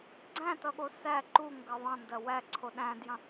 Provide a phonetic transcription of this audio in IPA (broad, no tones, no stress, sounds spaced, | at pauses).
ɡ͡ǀ æ̃ t ʌ ɠ o s æ ǃ u ŋ ɡ ɐ ðˤ ɐ̃ n d ɐ w æ ǀʰ o ɗ æ̃ d j ɐ̃